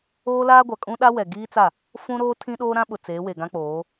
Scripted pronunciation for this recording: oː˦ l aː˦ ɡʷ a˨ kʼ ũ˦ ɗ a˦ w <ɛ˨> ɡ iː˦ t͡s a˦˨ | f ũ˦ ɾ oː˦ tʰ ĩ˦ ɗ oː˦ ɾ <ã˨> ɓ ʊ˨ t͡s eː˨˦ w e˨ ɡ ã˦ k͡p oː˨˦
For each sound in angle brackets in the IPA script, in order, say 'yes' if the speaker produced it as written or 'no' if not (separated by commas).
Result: yes, no